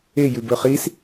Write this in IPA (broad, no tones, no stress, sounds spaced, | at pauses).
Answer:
e j ʉ b ɵ χ i s